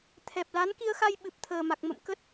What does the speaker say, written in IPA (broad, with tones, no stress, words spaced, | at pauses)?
t̪ʰɛ˨˩p̚la˨˦n ki˧ə̯xa˧j ɓɨ˨˩p̚t̪ʰəː˨˩ma˨˩k̚ mə̰˧˨mkə˦˥t̚